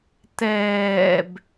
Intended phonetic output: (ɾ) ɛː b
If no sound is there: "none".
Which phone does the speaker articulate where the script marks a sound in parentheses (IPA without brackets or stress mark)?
t